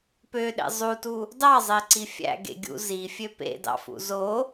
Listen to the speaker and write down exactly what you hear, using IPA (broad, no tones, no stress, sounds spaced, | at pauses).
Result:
p ø ɗ ḛ zˤ u t u | d ɑ zˤ e ǀ i fʲ æ̰ ɡ ḛ ɡʲ ṵ z i fʲ ø p ḛ d ɑ̰ f ṵ z o